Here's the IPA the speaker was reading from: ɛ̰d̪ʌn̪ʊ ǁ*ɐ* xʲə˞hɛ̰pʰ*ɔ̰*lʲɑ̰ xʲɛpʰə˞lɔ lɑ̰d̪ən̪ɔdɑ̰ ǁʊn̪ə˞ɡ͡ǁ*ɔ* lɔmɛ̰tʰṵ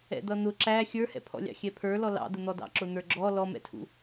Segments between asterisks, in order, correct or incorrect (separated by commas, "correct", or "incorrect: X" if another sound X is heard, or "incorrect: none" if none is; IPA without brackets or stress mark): incorrect: æ, correct, correct